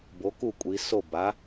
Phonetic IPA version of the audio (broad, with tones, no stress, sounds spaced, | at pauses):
b o˩˥ k u˥˩ kʷʼ i˩˧ s o˥˩ b a˩˥